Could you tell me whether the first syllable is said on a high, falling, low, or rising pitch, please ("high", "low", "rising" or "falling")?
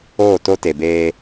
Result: falling